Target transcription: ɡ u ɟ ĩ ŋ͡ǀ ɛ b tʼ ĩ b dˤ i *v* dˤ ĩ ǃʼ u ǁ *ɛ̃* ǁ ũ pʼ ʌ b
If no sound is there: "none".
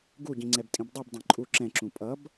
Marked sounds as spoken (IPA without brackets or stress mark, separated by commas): b, ɛ̃